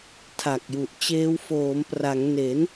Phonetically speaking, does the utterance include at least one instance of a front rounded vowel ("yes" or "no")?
no